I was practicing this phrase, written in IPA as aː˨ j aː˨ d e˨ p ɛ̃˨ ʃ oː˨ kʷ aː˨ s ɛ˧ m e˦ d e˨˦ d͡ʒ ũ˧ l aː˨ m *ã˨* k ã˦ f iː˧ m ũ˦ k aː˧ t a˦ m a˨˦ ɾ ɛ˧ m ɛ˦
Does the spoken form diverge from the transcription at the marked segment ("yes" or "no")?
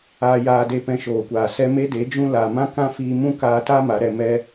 yes